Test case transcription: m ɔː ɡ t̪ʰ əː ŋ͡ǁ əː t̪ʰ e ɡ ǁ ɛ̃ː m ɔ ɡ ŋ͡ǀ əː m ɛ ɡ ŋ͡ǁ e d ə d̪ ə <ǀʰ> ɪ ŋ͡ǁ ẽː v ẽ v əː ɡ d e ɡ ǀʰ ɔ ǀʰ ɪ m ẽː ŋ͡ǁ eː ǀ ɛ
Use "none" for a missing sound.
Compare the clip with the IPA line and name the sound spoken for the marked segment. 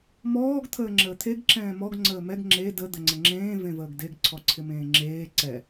ŋ͡ǀ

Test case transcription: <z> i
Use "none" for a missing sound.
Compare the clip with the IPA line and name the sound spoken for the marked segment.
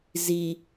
z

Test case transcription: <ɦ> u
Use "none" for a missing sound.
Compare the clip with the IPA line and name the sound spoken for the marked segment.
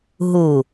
ɦ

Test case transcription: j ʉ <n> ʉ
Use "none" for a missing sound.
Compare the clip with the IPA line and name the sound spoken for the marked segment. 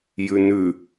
n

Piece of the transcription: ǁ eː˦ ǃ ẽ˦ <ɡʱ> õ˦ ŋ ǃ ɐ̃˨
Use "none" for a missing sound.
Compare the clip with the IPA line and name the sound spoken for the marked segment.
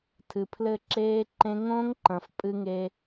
ŋ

